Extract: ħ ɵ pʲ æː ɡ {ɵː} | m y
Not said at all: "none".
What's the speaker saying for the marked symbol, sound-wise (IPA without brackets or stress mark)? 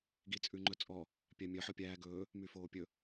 ɵː